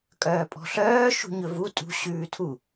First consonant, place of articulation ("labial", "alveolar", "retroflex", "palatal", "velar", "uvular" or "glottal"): velar